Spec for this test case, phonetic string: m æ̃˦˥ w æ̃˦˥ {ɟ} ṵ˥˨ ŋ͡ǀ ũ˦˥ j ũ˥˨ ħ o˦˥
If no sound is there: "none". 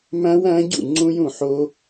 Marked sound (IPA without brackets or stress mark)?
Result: ɟ